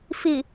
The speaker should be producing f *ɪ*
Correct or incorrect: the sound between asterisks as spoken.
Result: correct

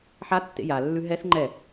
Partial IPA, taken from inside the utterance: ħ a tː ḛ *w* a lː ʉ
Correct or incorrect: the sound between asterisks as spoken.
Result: incorrect: j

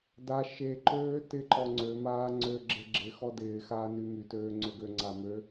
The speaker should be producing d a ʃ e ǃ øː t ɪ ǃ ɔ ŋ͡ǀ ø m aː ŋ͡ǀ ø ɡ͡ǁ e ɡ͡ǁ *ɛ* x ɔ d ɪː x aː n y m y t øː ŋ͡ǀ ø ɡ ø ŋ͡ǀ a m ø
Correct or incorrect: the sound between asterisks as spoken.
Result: incorrect: ɪ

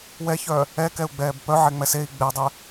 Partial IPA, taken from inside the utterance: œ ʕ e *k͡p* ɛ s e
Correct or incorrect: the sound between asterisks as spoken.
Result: incorrect: ŋ͡m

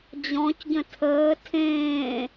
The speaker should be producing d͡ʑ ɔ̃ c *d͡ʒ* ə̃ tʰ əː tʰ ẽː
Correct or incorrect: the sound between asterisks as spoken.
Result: incorrect: ɟ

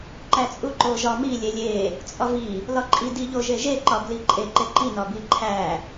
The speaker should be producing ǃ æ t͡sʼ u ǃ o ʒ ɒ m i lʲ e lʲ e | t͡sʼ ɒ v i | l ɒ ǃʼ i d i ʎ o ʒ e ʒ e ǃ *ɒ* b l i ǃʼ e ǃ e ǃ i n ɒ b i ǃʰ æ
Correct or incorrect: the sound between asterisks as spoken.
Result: correct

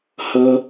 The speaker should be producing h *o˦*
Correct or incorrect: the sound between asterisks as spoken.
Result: incorrect: ɤ˦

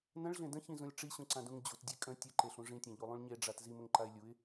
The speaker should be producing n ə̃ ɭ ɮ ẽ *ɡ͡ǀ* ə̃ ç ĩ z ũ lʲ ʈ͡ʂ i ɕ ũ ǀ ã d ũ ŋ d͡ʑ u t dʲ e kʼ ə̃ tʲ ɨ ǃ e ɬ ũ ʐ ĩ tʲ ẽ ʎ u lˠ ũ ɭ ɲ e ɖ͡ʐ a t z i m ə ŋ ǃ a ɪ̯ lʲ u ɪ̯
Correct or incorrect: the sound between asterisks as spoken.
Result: incorrect: d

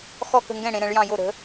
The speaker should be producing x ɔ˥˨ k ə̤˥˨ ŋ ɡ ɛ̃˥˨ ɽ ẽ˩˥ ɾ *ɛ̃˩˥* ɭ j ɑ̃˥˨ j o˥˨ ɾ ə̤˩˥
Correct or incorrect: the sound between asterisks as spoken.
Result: correct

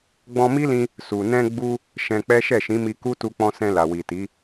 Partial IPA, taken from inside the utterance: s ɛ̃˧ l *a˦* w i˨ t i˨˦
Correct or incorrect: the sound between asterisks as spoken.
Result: incorrect: a˨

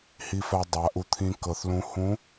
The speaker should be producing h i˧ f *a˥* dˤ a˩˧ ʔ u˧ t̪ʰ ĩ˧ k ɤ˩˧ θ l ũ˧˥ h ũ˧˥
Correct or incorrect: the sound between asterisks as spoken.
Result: incorrect: a˧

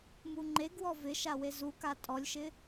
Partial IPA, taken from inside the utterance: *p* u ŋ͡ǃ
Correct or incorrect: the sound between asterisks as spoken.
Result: incorrect: m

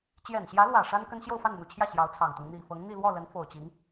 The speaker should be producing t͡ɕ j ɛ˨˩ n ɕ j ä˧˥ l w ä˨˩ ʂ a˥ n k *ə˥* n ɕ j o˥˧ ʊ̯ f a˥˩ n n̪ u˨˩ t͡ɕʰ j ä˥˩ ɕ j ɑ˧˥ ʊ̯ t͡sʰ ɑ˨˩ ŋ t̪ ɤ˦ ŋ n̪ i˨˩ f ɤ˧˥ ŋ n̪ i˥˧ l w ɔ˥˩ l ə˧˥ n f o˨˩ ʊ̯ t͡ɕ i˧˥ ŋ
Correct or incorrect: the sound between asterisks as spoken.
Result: correct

